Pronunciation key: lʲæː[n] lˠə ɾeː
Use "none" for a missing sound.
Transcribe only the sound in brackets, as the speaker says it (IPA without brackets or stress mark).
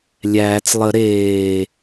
t͡s